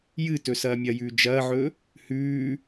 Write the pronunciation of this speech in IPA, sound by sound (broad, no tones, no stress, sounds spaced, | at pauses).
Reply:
j ɨ t ɵ s ɐː mʲ ɐ j ʉː d͡ʒ ɐː ʕ ɵ | h ʉː